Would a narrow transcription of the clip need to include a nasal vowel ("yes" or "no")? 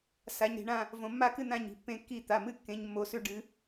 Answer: yes